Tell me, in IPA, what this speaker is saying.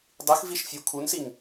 dˤixviʃ fʲukʰunsiŋ

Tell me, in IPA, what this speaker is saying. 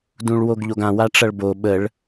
dũɭwoɡʎoɡã waʈ͡ʂʌɭbo ɓəɭ

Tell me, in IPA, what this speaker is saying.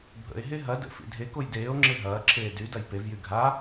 bʱə̰e̯ɦe ɦɐ də̰ fḭdʱekoj deːo̯ŋ͡ǁe ɦɐːǁʰeː dy dɐjpevjy ɡʱa

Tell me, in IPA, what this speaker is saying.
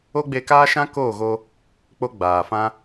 o˦ɡ͡be˧kaː˦ʃã˦ koː˦˨ɣo˧ | k͡po˦ɡ͡baː˨fã˦

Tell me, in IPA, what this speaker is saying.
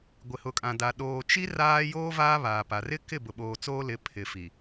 ɡʷɪ˨hʊ˨kʼã˨da˨ ɗoː˨ t͡ʃi˦ raː˦ joː˦ vaː˦ βaː˨pa˨ rɪ˦ kɪ˦˨bʊ˨ɓoː˨ t͡soː˦lɪ˨˦ pʰɪ˨fi˨

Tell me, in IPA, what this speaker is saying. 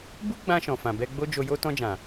bu˦ɡ͡bã˧ ʃɔ̃˨fã˨bɛ˧ɡ͡bo˦ d͡ʒo˧jo˦ tɔ̃˧d͡ʒã˨

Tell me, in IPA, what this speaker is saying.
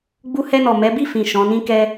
ɡ͡bu˧hɛ˧nɔ˨ mɛ˨˦bi˦˨fĩ˨ ʃɔ̃˨˦nĩ˦kɛ˦

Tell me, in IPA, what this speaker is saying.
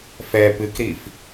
fɛ pɨkɾif

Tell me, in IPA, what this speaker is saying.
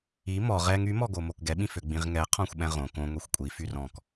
i mɔ ʁɛŋ ymɔɡo mokɡɛɓĩfø ɡ͡bĩʁŋɛ qʰɔ̃xʷɓɛ̃ʁõ kõŋʷixʷ kʷʼifyr ɔ̃k

